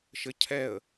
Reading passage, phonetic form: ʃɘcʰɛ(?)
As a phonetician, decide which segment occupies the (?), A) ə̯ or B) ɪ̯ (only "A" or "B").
A